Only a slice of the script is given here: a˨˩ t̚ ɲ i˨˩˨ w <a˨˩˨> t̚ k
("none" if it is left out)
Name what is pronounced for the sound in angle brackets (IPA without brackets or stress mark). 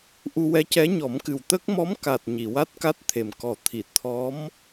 a˦˥